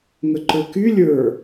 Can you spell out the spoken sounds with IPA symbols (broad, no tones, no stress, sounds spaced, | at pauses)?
ŋ ə ǃ ə˞ k y lʲ ə˞